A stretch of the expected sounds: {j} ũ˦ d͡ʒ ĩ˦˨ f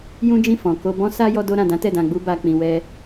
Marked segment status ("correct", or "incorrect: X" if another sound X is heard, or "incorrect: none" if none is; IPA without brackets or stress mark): correct